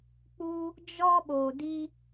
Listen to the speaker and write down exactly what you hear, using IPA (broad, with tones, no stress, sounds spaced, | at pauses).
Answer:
k͡p u˧ | d͡ʒ ɔ˧ ɓ oː˨ d i˧